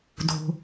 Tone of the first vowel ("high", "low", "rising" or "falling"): low